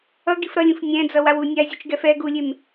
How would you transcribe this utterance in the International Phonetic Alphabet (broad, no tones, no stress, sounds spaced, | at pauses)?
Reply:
ʌ ɡ i f ɾ ʌ lʲ ũ f nʲ ɛ̃ d͡z ʌ w a w u nʲ a zʲ u t͡ʃ ɡ ɛ f ɛ ɡ u lʲ e m